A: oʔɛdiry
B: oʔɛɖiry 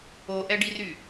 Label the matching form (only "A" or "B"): B